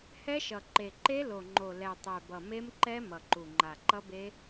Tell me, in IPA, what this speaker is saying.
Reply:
h ɛ˦˥ ʃ ʌ˨˩ ǃ e˨˩ ǃ e˦˥ l o˨˩ ŋ͡ǃ o˨˩ l ɛ˨˩ tˤ ɛ˨˩ b ʌ˨˩ m e˦˥ m ǃ ɛ˦˥ m ʌ˨˩ ǃ u˨˩ ŋ͡ǃ a˨˩ ǃ ʌ˦˥ b e˦˥

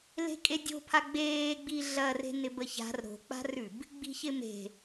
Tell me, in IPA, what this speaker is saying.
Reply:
l e̤ kʼ e dʲ o̤ pʰ a ɡ͡b eː ɡ͡b i ɮ ɐ r e̤ n ɪ b ə ç a̤ r ɾ o̤ k͡p a̤ r ʉ b | ɡ͡b i̤ ç ɪ m e̤

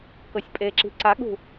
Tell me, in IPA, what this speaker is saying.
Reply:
k ɤ sʲ pʼ e ǁ i̤ ǀ a ɠ ṳ

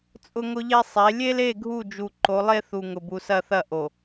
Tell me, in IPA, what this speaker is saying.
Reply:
t͡sʼ ʊ˦ ŋ ʊ˦ ʎ e˦ sˤ e˨˦ lʲ e˦ l e˦˨ ɡʱ u˦˨ d͡ʒ u˨ ǃ o˨˦ lˠ e˦ θ u˨ ŋ ʊ˨ b u˨ s ɐ˦˨ θ ɐ˦˨ ʔ o˨

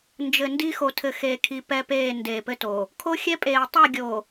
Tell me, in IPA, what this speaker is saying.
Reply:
n d͡ʒ ɘ˨ n d i˦ x o˨ tʰ ɘ˨ x eː˨ kʰ i˨ p ɛ˦ p eː˦˨ n d eː˨ p ɘ˦ t o˨ | kʰ o˦ xʲ ɛ˦ pʼ eː˨ tˤ e˦˨ ɡʲ oː˨

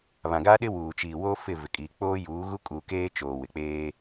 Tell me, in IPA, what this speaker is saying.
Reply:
β ã˨ ɡ aː˦ ɗ ɪ˦ w uː˨ t͡ʃ iː˨ w o˦ f ɪ˦˨ v ɪ˨ kʼ iː˨ k͡p oː˦ j uː˨˦ ɣ u˦ kʼ u˨ k eː˦ t͡ʃ oː˨ w ɪ˨ k͡p eː˦

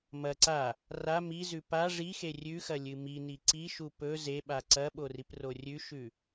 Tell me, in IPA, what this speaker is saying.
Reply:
m ɐ ǀ a | r a m i z ʉ p a ʐ i x e rʲ ʉ x ɐ lʲ ɨ m i n i ǀ i ʃ u p ɵ z e ɓ a ǀ ɐ ɓ o r i p r o rʲ ʉ ʃ ʉ

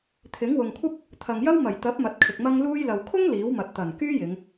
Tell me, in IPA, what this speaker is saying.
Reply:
t̪ʰ ɪ˨˥ ŋ w ʊ˨ ŋ kʷʰ ɐ˥ p̚ | t̪ʰ ɐ˨ ŋ j ɐ˥ w m ɐ˨˩ j t̪ ɐ˨˥ p̚ m ɐ˨˥ t̚ kʰ ɪ˨ k̚ m ɐ˧ ŋ l uː˧ j l ɐ˨ w kʰ ʊ˥ ŋ l iː˨˥ w m ɐ˨˥ t̚ t̪ ɐ˨˩ n k yː˥ j ɪ˨˧ ŋ

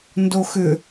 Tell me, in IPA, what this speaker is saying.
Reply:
n d o x ʏ

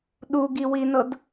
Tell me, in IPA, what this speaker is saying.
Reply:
ɗ u ɡ i w i n ɤ d

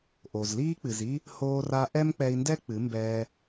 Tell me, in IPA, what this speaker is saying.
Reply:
ʔ o˨ z l iː˧ k͡p ɨ˨ z i˧ | h oː˧ r a˧ ʔ ɛ˦ m k͡p ɛ˧ i̯ n d ɛ˦ k͡p ɨ˨˦ m b ɛː˧

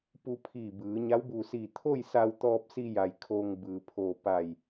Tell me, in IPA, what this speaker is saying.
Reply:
p u˧ pʰ iː˧˩ b ɯː˩˧ ɲ a˧˥ w b uː˧˩ s iː˧˩ t̪ʰ o˥˨ j s a˧ w t̪ ɔː˧ p̚ s i˧ j a˩ j kʰ oː˧ ŋ b ɯː˩ pʰ oː˧˩ p a˧˩ j

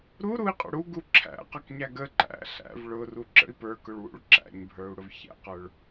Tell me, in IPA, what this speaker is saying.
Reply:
ɾ u ɾ u i̯ qʼ ə̰ ɽ u ɡ u ǁʰ æ̰ q ɑ k ɲ æ ɡ ə ǃ æ̰ ɬ æ̰ v ɭ ʊ r u ǁ ə̰ i̯ p ə˞ k ʊ ɭ w ṵ ɭ ǁ æ̰ ɲ bʱ ə˞ u̯ ɽ ʊ v ç æ̰ q ə˞ ɭ

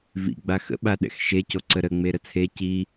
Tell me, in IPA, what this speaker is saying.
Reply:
v ḭ ɡ͡b a x ə̰ ɓ a ɗ ɛ̰ x ʃ e c o ǀ ə ɾ ə ŋ͡m e ɾ ə t͡sʰ e c i

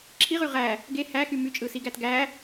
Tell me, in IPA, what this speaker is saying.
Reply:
ǁʰ i ʁ y ʁ æ | ɡ e h æ x y m y t͡ʃʼ ɯ s i ɡ æ t ɡ æ

